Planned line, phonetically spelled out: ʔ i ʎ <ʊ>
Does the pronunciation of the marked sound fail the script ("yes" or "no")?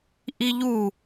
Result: yes